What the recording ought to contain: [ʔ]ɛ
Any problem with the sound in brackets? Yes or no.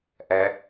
no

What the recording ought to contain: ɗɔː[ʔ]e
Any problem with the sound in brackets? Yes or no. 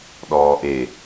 no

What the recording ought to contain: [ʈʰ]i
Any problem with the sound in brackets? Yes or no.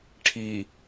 no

